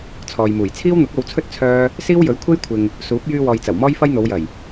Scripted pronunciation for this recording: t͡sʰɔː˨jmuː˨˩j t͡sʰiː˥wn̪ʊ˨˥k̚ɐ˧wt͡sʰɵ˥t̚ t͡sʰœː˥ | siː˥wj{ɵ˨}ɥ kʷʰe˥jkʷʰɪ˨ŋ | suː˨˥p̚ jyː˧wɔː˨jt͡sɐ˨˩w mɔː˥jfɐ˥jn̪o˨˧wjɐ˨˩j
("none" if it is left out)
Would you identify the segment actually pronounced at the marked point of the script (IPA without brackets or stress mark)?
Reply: ɵ˨˥